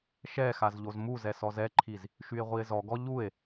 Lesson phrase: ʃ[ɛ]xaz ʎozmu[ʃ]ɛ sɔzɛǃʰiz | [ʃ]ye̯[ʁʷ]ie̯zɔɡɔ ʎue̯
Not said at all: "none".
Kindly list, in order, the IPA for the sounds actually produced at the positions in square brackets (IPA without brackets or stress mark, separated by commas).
ɛ, z, ʃ, ʁʷ